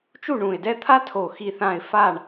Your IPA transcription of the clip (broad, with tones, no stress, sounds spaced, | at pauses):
t͡ʃ u˦˨ ɳ ũ˨˩ ɪ̯ d ɛ˦ t̪ʰ a˦ tʰ o˨˩ x i˦˨ θ ã˦˨ ɪ̯ f a˦˨ ɳ